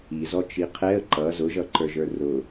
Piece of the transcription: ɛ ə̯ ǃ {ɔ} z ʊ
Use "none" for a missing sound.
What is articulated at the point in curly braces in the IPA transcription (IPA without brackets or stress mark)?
ʌ